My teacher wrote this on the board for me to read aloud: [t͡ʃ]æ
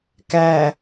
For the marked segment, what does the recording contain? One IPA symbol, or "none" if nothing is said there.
k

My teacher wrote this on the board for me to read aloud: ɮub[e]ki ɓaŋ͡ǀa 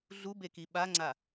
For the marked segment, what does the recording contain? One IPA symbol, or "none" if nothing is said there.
e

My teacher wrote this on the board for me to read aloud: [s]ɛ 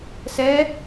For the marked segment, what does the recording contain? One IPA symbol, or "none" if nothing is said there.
s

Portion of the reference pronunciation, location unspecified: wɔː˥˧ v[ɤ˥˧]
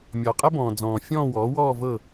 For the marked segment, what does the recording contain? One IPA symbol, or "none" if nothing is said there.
ɤ˥˧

